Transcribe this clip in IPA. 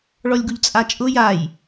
ɭ ɔ lʲ ɡ u ʎ t͡sʼ a t͡ʃʼ ʊ j a j

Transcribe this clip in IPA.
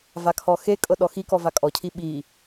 v a kʰ ɔ x e kʼ ɤ ɗ ɔ x i k ɔ v a kʼ ɔ cʰ i ɓ i

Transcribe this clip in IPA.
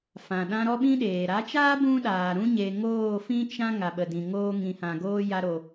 f ã˨ ɗ ã˧ ɾ ɔ˦ ɓ ĩ˦ ɗ eː˨ ɾ a˨˦ t͡ʃ aː˦ b ũ˦ ɗ aː˨ ɾ ũ˦ ɲ e˧ ŋ oː˦˨ f ĩ˦ t͡ʃ ã˦ ŋ a˨ ɓ ə˨ d ĩ˨ ŋ oː˧ ŋ ĩ˨ h ã˨ ɡ oː˧ j a˧ ɾ o˨

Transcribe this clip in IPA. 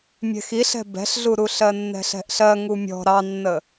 mʲ ɛ̤ x i ɬ ɛ̤ b ɛ̤ ɬ ɮ u ɾ u ɬ ɜ nː ɛ̤ ɬ ɛ̤ ʔ ɬ ɜ ŋ u mʲ ɔ̤ ɾ ɑ nː ə

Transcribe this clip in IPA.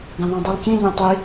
ɡ ɐ̃ ðˤ õ dˤ i lˠ kʲ ẽ ʎ ɐ̃ tˤ i

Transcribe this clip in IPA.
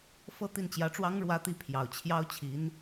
f ɤ˥˧ t̪ i˥˩ n t͡ɕ j ä˧˥ ʈ͡ʂ w ɑ˥ ŋ ɻ w ä˥ t̪ i˥ pʰ j ɑ˨˩ ʊ̯ t͡ɕʰ j ɑ˥ ʊ̯ t͡ɕʰ i˧˥ n

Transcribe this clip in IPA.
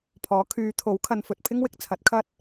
pʰ ɔː˨˥ kʰ yː˨˧ t̪ʰ o˨˥ w kʰ ɐ˨ n f ɵ˨ t̚ pʰ ɪ˥ ŋ w ɪ˧ k̚ t͡sʰ ɐ˨˥ t̚ kʰ ɐ˥ t̚

